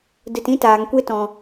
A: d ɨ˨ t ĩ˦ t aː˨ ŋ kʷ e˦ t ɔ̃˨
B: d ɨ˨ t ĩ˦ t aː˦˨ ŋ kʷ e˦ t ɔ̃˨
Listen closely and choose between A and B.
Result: A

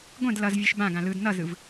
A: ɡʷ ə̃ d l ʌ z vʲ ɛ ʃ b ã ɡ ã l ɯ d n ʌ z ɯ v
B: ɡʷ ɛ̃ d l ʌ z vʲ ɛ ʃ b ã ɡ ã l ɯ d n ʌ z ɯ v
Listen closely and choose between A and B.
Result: B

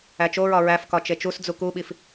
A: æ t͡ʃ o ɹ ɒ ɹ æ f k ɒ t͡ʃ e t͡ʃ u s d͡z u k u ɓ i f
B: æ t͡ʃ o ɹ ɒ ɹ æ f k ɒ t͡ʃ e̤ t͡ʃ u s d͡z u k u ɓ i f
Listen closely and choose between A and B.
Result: A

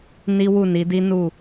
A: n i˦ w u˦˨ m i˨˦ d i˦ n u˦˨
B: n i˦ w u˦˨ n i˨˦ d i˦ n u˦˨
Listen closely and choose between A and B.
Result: B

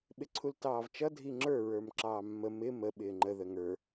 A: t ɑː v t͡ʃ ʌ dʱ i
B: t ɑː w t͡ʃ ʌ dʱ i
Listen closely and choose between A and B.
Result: A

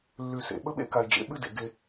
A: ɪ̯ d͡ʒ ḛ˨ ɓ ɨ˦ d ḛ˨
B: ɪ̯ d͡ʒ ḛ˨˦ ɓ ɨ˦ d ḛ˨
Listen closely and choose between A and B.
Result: B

